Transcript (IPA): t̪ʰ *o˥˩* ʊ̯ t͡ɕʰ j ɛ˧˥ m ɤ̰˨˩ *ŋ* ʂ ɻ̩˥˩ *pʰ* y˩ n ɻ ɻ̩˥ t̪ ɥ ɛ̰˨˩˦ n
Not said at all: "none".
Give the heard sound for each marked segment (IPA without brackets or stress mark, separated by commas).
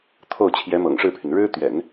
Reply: o˥˩, ŋ, pʰ